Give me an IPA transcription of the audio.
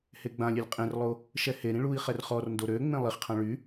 h e ɡ͡b ã lʲ e lʲ qʼ ẽ r lˠ o | ʃ ɛ h e ɾ ĩ ɭ u i̯ χ ɛ r χ ɔ r n d o ɾ ø ŋ͡m ẽ lˠ i χ qʰ ã ɭ y

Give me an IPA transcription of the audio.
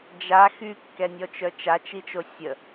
d͡ʒ a x y kː ɛ nʲ ɔ t͡ʃ œ t͡ʃ a t͡ʃ i t͡ʃ o sʲ ə

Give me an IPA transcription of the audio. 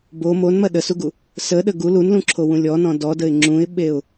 b o m o n m ɐ ɗ ə s u ɡ u | s ə ɗ ə ɡ u l u n l ũ ǁʰ o w ũ lʲ ɔ n ɔ̃ d ɔ d ə ɪ̯ ŋ͡ǁ ũ ɪ̯ ɓ e ʊ̯

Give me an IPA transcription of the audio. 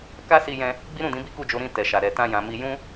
k a˦ s i˧ j ɛ̃˧ | ɡ͡b i˦ ɾ ũ˦˨ d ĩ˨˦ b i˦ k u˦˨ d͡ʒ o˨˦ ɾ ĩ˧ t ɛ˨ ʃ a˨ ɾ ɛ˨ t ã˧ j ã˨ m i˧ j ũ˦

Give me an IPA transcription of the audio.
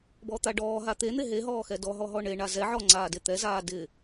b ɔ t̪ a ɖ ɔː ɦ a t̪ e n̪ e ɦ e ɦ ɔː x ɛ d ɔ ɦ ɔ ɦ ɔ ɳ e ɳ a z ɛ ʕ ɔ ŋ͡ǀ aː d e t̪ ɛ z aː d ɪ

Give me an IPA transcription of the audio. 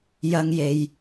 j ɐ˥ ŋ j e˧ j

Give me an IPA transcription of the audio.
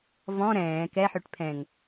v ɔ̃ ɾ ɛ̃ː k ɛ ħ ø ʈ pʰ ɛ̃ ŋ

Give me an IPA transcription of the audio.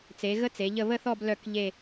t͡s e˩˧ ɣ ə˦˥ t͡s e˩˧ ʎ ə˦˨ β ə˦˨ θ ɔ˦˨ b l œ˦˨ k ʎ e˦˨

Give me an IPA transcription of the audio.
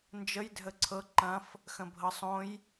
n d͡ʒ ə j dʱ ə ǀʰ ɤ ǃ ɐ̃ f | x ə̃ bʱ ɤ sˤ õ j

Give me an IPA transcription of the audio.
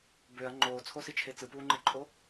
b ø ɐ̯ ŋ͡ǃ oː t͡sʰ o s i t͡ʃʰ e t͡s ɯ p uː ŋ͡ǃ e ǃʼ o

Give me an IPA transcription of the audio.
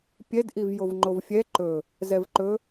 pʲ ɛ d ʔ i v j o v ŋ͡ǃ o v fʲ ɛ ǃ ɵ | z ɛ v ǃ ɵ

